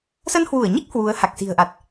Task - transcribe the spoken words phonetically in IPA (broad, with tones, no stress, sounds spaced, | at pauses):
s ə˧ n h w u˧˩ ə̯ ɲ i˦˥ k̚ h w u˨˦ ə̯ h a˨˩ k̚ s i̤˨˩ ə̯ ʔ a˨˩ t̚